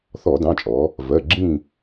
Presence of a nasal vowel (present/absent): present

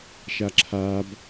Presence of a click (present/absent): present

